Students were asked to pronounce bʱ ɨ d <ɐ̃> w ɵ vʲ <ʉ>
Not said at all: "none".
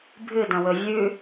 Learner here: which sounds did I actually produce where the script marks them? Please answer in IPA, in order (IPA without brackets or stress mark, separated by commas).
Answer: ɐ̃, ʉ